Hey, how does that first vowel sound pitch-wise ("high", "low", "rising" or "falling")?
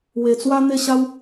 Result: low